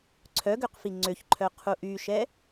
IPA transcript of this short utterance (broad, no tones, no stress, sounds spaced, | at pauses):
ǀʰ œ ɡ ø q f i ŋ͡ǀ ø ç ǃʰ œ qʰ u ʔ y ʃ ɛ